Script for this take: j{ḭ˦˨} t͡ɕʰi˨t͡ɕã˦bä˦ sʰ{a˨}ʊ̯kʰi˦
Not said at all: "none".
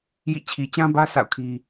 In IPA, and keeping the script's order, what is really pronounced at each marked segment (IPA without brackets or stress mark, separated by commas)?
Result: ḭ˦˨, a̰˦˨